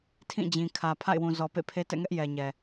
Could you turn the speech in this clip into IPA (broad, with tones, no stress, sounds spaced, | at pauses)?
tʰ ĩ˦˨ d͡ʑ ĩ˨ kʰ ä˨ pʰ a̰˦˨ ɪ̯ w ũ˨ z ɔ˨ p ḛ˦˨ pʰ e˦ t ɛ̰˦˨ ŋ ɛ˦ ʔ j ɛ˨ ɲ ɛ˨